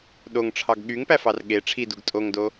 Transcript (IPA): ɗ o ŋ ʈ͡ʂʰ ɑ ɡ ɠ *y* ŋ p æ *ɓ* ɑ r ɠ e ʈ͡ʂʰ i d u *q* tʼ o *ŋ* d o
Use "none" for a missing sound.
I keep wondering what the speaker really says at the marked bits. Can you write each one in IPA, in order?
y, f, ɡ, ŋ

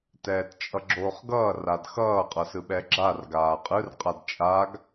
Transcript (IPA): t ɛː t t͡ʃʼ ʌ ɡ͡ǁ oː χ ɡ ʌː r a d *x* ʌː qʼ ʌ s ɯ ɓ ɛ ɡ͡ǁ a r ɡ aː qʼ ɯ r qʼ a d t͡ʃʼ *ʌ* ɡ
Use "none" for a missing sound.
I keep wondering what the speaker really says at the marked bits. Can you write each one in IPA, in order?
x, a

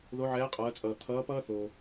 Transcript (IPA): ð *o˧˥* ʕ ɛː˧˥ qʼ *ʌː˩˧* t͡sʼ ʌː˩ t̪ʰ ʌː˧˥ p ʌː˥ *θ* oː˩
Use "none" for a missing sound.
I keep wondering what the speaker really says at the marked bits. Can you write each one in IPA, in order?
o˧˥, ʌː˩˧, θ

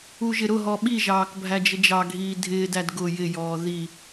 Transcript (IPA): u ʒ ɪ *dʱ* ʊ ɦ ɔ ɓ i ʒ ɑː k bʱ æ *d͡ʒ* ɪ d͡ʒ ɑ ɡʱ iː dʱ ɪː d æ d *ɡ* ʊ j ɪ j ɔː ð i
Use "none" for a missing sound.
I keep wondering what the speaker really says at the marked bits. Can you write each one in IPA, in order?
ɾ, d͡ʒ, ɡ

